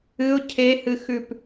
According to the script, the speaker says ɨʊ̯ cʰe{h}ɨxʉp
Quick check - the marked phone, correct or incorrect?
correct